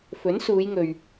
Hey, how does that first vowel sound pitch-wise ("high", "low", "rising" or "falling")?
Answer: rising